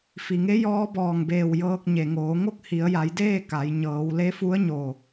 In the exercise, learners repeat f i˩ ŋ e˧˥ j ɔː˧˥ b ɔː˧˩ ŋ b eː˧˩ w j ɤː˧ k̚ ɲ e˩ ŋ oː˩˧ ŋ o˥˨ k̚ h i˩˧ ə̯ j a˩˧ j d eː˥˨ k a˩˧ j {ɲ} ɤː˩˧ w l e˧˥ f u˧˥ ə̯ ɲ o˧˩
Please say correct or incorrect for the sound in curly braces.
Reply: correct